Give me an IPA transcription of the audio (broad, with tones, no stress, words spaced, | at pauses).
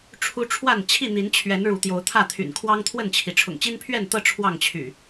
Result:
ʈ͡ʂʰu˦ʈ͡ʂʰwa˥˨n t͡ɕʰi˥˨n̪i˨˦nt͡ɕʰɥɛ˨˦n ɻu˨˦t̪jo˨˦ʊ̯t̪ʰä˥˨t̪ʰy̰˨˩n kʰwɑ˦ŋt̪ʰwə˥˨nt͡ɕʰi˩ ʈ͡ʂʰʊ̰˨˩ŋt͡ɕi˦npʰɥɛ˥˨nt̪ɤ˥˨ ʈ͡ʂʰwɑ˥˨ŋt͡ɕʰy̰˨˩